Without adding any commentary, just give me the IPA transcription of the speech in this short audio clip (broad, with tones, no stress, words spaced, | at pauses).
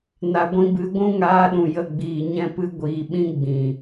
na˨ɡʷĩ˧bɨ˨˦ ɡʷũ˦ŋaː˧ɗũ˨ jə˦˨ɡ͡biː˨ɲɛ̃˦pɨ˦ ɡʷiː˨ɓĩ˦ ɡ͡bĩ˨